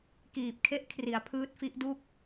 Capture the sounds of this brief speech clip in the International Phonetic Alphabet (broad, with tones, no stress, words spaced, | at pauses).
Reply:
kiː˨˩p̚kʰe˥˩ʔ kʰri˩˦a̯pʰɯː˦˥t̚fi˦˥ʔdu˥˩k̚